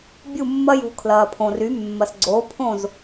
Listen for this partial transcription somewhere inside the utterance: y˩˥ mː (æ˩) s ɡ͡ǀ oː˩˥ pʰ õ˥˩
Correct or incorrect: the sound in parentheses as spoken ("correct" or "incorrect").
incorrect